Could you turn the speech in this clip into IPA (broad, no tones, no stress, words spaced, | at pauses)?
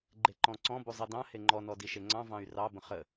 ɡ͡ǃeǃɔ̃ǀɔ̃ buzˤidɑ̃ heŋ͡ǃɔ nɔdiʃeŋ͡ǀɑ̃ vɑ̃y̯rɑ bə̃χə